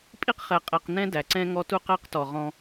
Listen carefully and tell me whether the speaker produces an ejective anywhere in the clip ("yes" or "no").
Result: yes